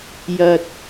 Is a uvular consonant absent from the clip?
yes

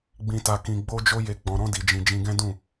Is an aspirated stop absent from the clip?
yes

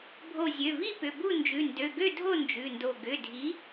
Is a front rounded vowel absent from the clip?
no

